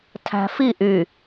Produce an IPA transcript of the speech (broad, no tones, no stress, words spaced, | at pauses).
tʰæ̤fi ʔy